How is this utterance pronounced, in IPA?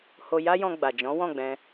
h o˧ j a˦ j ɔ̃˧ ɡ͡b a˨ d͡ʒ ɔ̃˨˦ w ɔ̃˦˨ ɡ͡b ɛ̃˧

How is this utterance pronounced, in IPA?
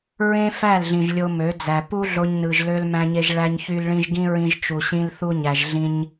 ɹ ẽ˦ f æ˦˨ l ɮ ĩ˨ ʒ lʲ o˧ m ø˨˦ d͡z æ˨ p u˦ ɮ o˧ ɲ n ɯ˨ ʒ l ø˧ l m æ̃˧ ɲ e˧ ʒ ɭ æ˧ ɲ ç y˧ l ɭ ĩ˧ ʒ ɡ ĩ˦ ɹ ĩ˧ ʒ t͡ʃ u˨ ɕ ĩ˧ l θ u˧ ɲ æ˨ ʒ ɮ ĩ˧ ɲ

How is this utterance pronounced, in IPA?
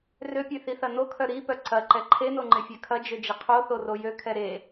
r ø pʲ ø θ i θ ɐ n o kʰ œ ɾ i p œ ǀ ɐ ǃ ɛ ǃʰ e n o ŋ͡ǃ ɪ fʲ ø kʰ ɐ d͡ʒ ø d͡ʒ ɪ qʰ o θ o r o j ø kʰ ɛ ɾ e

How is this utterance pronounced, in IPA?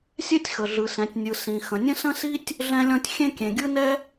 sʲ ɛ˥ tʲ x ə˩ ɮ ɯ˩ s ɛ̃˩ tʲ nʲ ɯ˩ s ĩ˩ x ə̃˩ nʲ ə̃˥ s ə̃˥ s i˥ tʲ | ɮ ɛ̃˥ lʲ ɔ̃˥ tʲ xʲ ẽ˥ kʲ ẽ˩ ɡʲ ɯ˥ n ɛ˥

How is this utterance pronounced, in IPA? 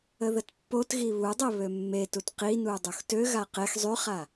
ə ð ə t pː o t ɣ i β u dˤ e β ø mː e t u t q i n u dˤ u x t ø ɣ a q e x zˤ y χ a

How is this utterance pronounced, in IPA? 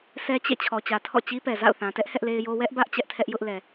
sʰ ɛ˦ t͡ɕ ḛ˦˨ t͡ɕʰ ɔ˨ t͡ɕ ä˨ tʰ ɔ̰˦˨ t͡ɕ i˦ p ɛ˨ z a̰˦˨ ʊ̯ θ ã˨ t ɛ˦ ʔ h ɛ˦ ʔ l e˦ ɪ̯ j o˦ w ɛ˦ ʔ b ä˦ ʔ t͡ɕ ɛ˦ ʔ tʰ ɛ˦ ʔ j ʊ˦ ʔ l ɛ˨

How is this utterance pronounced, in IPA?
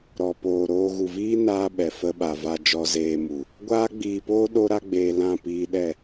ɾ ɔ˨ p oː˨ ɾ oː˧ ɣ u˨ v iː˦ n aː˦ ɓ ɛ˨ f ə˧ ɓ a˨ v a˧ d͡ʒ ɔ˧ z eː˧ m u˨ | ɡʷ aː˦ ɡ͡b iː˧ p oː˦ ɗ o˦ ɾ a˦ ɡ͡b eː˧ l ã˦˨ p iː˧ ɗ ɛ˦˨

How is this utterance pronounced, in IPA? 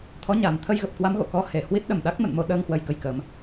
t̪ʰ ɔ˨˦ ɲ a˨˩ n t̪ʰ ə˧ j ɣ ə˨˩ p̚ k w a˨˦ m ɣ o̰˧˨ k ɔ˧ h e˨˩ h w i˦˥ t̚ ɗ ə˨˩ m ɗ a˦˥ k̚ m ə̰˧˨ n m o˧ ɗ əː˧ ŋ h w ə˧ j k ə˨˦ j k əː˨˦ m

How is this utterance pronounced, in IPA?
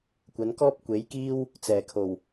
kʷ ɐ˨˧ n k ɔː˥ p̚ kʷ e˨˥ j k iː˥ w | t͡s ɛː˨˩ kʰ o˨˩ w

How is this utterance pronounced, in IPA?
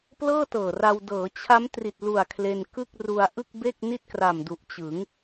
p l ɤː˥˩ t ɤː˨˩ r a˧ w d ɤː˩˦ t͡ɕʰ a˦˥ m t r i˨˩ t̚ l u˨˩ a̯ kʰ l e˧ n k ɯ˥˩ k̚ r u˧ a̯ ʔ ɯ˥˩ k̚ b e˥˩ k̚ n i˥˩ t̚ k r a˨˩ m d u˨˩ ʔ t͡ɕ ɯ˩˦ ŋ

